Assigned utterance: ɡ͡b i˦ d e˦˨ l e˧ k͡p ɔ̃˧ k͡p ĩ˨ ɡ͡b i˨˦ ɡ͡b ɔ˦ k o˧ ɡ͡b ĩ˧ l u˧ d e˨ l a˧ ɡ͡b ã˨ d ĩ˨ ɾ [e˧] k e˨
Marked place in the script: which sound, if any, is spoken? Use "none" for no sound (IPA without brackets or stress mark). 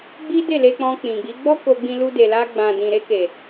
e˧